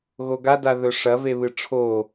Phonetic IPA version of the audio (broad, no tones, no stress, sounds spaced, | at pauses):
ɣ o ɡ a d a ð ɵ ʂ ɐ v e β ɨ ʈ͡ʂʰ o